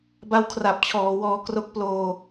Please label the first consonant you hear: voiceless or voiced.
voiced